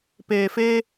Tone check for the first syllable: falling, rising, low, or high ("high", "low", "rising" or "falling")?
low